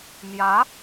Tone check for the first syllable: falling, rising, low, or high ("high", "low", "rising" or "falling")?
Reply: rising